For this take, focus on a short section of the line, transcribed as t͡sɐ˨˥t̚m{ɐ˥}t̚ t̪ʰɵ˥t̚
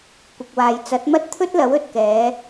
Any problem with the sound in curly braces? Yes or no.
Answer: no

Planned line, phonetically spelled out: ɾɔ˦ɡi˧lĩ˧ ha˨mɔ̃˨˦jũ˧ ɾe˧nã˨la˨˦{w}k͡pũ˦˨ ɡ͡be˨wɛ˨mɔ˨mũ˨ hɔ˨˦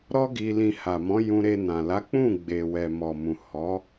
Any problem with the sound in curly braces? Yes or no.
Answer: yes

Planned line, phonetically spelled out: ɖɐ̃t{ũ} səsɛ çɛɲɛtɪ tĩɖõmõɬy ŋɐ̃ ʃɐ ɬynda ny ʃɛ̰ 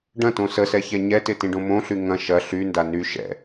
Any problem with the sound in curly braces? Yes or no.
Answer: yes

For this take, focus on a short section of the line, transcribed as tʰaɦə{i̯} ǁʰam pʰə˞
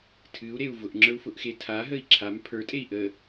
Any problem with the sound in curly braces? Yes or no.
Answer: no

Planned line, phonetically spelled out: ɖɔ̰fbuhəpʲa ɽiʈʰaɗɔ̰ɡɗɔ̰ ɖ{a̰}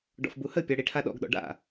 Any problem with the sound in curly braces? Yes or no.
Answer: no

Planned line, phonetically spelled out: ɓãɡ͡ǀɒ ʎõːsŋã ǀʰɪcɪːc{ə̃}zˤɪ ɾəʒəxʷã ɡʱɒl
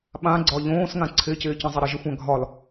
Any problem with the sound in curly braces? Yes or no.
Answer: no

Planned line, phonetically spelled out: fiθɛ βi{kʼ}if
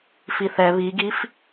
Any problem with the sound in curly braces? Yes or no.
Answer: yes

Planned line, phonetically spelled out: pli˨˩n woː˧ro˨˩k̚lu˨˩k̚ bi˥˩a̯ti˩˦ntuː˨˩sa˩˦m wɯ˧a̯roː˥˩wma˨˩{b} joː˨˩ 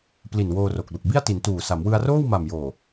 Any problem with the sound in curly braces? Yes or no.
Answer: yes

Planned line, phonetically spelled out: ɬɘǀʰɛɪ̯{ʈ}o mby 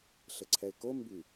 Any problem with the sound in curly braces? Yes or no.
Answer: yes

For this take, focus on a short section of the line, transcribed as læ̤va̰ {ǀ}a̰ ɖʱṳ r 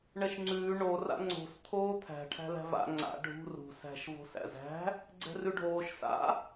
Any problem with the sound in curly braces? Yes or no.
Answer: yes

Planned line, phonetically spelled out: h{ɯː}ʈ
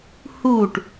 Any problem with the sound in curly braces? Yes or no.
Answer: yes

